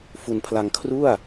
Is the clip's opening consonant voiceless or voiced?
voiceless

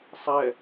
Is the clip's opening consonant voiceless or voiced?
voiceless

